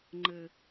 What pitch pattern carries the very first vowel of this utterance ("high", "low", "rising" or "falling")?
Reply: low